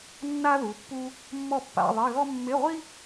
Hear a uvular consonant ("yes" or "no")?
yes